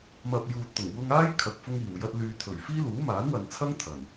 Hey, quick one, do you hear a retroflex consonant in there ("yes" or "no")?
no